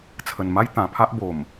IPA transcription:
t͡sʰ ə˨˩ n m a˦ j t̪ ã˨˩ pʰ a˦ ʔ b o˨˩ m

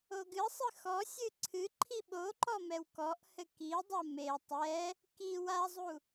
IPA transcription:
o ɡ ɨ sˤ ɨ x ɔ sʲ ɨ ǀʰ ɨ ǃʰ i ɓ o ǃ ɔ m ɛ w k ɔ ʔ h ɘ k i dˤ ɐ m e tˤ ɛ | k i w a zˤ u

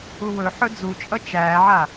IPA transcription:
u w ɵ ħ ɵ d͡z u t͡ʃʼ ʌ t͡ʃ æː ʕ a

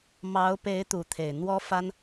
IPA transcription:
m ɑ˧˥ ʊ̯ p e˧˥ ɪ̯ t̪ u˧˥ t̪ʰ e˨˩ ɪ̯ n̪ w ɔ˥ f a˥ n

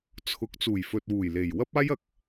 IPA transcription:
t͡sʰ ʊ˨˥ k̚ t͡s uː˨˩ j f ɵ˨ t̚ w uː˨˩ j l e˨˩ j w ɐ˥ p̚ aː˥ j ɐ˨ k̚

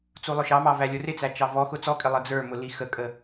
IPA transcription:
t͡s u lˠ ʊ ʃ ɑ m ɑ v æ lʲ ʊ r ɪ t͡s æ t͡ʃ ɑ v ɔ x ʊ t͡s ɔ kʼ ɪ lˠ ə d͡z ə˞ m ʊ l i x ə kʼ ə

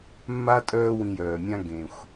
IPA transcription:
mː a˥ tʼ œː˦ w ĩ˨ j œː˩ mʲ ã˦ ɡ ẽ˩ xʷ

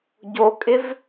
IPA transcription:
ɟ o kʼ ɪ v

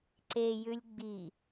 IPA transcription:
ǀ e j ʉ lʲ ɡ͡b i

